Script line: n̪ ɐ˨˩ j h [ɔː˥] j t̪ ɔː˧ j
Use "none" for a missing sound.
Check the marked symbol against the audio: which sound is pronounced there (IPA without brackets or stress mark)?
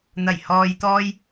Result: ɔː˨